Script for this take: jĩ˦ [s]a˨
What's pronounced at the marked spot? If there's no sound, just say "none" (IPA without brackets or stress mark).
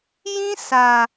s